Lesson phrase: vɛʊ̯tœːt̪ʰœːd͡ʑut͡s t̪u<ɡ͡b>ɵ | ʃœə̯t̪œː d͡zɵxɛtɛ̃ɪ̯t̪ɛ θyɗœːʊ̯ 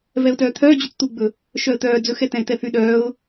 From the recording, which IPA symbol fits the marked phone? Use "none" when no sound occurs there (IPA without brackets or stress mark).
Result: ɡ͡b